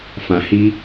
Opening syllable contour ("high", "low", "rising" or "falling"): low